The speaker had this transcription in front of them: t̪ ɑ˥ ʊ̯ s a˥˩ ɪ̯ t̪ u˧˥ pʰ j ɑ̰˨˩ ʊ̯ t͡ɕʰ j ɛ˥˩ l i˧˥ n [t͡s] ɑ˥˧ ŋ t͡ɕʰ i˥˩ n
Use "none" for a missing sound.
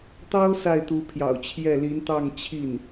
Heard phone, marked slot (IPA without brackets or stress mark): t̪